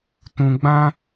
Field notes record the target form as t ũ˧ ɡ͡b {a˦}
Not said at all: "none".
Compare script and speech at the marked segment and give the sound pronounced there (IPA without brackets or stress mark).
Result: ã˦